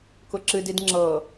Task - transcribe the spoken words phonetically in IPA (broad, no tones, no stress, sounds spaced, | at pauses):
k ʊ ǁ ɨ d i d ŋ͡ǁ ɤ